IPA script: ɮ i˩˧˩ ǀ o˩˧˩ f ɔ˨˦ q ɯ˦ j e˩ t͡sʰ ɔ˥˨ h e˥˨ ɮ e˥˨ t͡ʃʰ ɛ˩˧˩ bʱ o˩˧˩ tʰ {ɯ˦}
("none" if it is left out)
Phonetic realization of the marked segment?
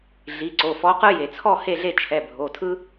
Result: ɯ˦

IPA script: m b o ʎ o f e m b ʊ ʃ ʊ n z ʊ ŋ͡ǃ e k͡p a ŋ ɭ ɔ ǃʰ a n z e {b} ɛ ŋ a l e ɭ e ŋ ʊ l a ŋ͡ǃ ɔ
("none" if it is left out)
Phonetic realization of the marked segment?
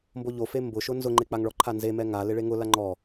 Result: m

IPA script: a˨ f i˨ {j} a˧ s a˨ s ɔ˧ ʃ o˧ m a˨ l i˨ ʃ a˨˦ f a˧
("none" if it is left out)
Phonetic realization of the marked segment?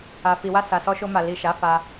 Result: w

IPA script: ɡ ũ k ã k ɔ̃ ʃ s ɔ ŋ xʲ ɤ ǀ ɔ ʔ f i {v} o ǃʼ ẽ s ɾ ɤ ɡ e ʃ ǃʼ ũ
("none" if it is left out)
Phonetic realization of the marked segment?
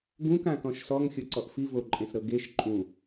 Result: v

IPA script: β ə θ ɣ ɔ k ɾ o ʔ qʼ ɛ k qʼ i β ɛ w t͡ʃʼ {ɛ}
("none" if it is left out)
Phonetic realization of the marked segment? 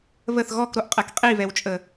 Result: ə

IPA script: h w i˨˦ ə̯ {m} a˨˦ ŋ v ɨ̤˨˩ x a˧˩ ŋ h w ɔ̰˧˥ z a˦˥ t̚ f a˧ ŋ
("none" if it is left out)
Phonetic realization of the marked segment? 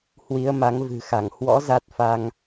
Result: m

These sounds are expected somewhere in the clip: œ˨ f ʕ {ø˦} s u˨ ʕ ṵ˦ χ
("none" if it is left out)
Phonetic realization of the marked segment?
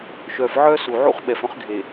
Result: œ˦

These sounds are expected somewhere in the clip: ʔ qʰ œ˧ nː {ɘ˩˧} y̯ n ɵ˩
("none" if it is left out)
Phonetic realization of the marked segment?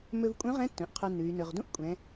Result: ʉ˩˧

